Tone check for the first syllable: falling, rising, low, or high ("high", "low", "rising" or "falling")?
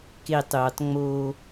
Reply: falling